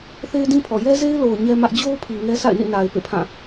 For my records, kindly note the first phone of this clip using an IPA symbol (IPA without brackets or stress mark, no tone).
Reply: θ